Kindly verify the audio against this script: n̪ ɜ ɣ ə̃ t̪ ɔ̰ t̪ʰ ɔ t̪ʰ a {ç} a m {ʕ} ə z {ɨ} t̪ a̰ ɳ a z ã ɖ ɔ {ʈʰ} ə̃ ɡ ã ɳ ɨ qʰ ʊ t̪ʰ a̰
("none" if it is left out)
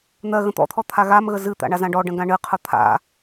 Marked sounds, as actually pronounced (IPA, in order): ɣ, ɣ, ɨ, ɖ

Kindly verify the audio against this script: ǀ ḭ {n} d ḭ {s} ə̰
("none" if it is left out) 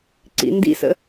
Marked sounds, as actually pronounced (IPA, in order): n, s

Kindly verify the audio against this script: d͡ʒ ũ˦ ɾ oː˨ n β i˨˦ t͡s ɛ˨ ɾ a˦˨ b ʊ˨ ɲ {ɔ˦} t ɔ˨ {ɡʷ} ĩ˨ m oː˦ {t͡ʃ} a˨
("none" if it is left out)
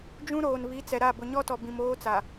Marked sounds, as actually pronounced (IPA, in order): ɔ˦, b, t͡s

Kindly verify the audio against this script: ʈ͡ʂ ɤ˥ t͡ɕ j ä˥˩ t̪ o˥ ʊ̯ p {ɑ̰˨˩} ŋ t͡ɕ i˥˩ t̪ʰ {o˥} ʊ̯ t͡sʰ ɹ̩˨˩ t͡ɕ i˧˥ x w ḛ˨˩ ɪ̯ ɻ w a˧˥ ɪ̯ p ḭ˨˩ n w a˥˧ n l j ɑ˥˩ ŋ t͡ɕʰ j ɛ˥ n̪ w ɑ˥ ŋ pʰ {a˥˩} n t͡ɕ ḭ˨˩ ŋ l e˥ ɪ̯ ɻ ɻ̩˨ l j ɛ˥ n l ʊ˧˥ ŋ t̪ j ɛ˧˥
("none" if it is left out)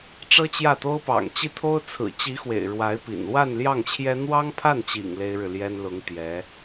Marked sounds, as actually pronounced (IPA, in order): ɑ̰˨˩, o˥, a˥˩

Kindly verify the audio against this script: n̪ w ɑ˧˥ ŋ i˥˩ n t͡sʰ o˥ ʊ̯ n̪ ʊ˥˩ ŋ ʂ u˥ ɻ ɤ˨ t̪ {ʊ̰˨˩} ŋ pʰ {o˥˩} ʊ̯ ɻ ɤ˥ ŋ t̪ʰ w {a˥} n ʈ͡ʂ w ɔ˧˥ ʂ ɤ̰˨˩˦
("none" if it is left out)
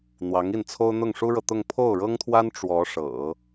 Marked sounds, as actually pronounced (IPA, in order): ʊ˥˧, o˥˩, a˥

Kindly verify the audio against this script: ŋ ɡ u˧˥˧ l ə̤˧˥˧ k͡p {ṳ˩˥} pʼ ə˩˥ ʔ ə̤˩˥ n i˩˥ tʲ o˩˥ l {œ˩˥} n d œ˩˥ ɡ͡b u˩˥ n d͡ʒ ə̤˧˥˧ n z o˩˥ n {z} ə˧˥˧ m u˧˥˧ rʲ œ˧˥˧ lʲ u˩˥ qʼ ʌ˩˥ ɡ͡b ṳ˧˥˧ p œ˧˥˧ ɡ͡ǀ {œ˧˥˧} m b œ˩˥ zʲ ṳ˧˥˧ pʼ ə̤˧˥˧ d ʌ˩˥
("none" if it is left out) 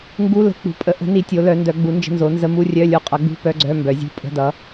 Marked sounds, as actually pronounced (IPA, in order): ṳ˩˥, œ˩˥, z, œ˧˥˧

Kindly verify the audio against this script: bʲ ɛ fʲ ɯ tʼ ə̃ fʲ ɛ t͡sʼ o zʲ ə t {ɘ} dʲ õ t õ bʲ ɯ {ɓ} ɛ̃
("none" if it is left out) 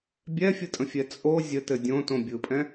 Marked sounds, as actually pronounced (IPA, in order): ɘ, pʼ

